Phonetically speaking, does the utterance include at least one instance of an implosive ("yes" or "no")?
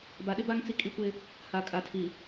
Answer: yes